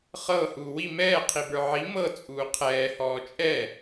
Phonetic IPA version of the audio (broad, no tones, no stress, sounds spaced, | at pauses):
χ ɤ h uː w i m ɛː qʰ i b ə˞ ʕ i m ɤ t͡sʼ uː qʰ ɛː h ɔː t͡ʃʼ ɛ